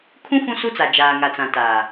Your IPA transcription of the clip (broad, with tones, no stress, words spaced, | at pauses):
kʰũ˦ fũ˦su˦t͡sa˨ d͡ʒaː˨ŋa˨t͡sã˨ taː˨